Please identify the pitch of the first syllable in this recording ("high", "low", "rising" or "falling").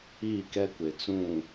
falling